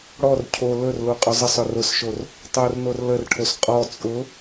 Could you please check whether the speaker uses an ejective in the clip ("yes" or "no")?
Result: yes